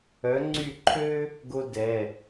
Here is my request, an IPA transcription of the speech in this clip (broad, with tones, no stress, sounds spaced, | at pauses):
œ˨˦ ŋ͡ǀ y˦˨ ǃʰ ø˥ | ɡ o˥ d ɛ˩˧˩